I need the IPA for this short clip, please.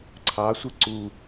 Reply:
ǀʰ ɑ sʷ i ǀ u

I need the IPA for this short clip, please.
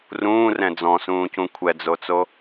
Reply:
r ũː r ɛ̃ d͡z ɔ̃ s ũː c ũ kʷʰ ɛ d͡z o t͡s o

